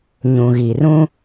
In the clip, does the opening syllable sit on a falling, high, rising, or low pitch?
low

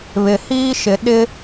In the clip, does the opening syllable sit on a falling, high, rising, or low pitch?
low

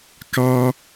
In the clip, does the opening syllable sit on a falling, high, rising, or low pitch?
high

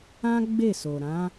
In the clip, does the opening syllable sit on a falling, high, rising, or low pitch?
high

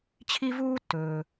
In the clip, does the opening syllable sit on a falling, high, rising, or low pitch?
high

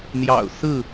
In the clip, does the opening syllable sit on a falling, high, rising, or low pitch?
low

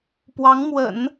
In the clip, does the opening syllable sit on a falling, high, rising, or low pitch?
rising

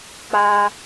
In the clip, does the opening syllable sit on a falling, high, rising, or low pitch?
high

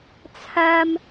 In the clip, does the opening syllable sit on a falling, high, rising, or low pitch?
high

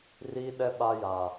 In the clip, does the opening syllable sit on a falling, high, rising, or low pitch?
high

